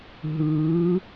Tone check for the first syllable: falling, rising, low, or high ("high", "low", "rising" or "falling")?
rising